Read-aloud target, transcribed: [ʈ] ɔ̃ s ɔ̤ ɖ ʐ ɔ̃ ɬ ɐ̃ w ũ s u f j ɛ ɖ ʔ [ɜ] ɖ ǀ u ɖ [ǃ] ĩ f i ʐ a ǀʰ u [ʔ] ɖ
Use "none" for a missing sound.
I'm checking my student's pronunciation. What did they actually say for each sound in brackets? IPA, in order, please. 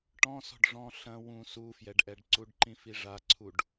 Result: ʈ, ɛ, ǃ, none

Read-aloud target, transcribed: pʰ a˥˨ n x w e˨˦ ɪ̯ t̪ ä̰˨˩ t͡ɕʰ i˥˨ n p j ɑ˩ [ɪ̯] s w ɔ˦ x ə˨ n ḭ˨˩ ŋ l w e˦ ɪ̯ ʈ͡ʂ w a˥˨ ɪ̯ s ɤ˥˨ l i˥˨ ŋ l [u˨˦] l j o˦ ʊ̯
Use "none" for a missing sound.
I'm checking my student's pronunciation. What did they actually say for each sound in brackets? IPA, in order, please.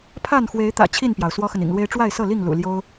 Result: ʊ̯, ṵ˨˩

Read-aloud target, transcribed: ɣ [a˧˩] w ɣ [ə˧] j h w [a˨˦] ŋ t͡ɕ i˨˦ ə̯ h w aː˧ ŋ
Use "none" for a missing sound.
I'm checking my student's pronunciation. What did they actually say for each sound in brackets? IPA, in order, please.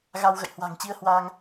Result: a˧, ə̰˧˨, a̤˨˩

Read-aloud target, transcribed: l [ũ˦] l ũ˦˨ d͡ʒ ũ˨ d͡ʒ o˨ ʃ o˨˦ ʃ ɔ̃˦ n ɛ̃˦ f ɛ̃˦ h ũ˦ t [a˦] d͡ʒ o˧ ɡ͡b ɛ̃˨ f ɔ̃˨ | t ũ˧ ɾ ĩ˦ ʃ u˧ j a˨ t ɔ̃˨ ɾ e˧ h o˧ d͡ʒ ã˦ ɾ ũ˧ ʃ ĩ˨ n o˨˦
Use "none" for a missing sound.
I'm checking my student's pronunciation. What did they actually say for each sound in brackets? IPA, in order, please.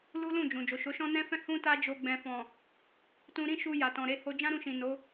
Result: u˦, a˦

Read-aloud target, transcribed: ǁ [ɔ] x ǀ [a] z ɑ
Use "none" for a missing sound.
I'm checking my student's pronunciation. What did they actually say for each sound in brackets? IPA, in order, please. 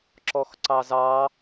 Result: ɔ, ɑ

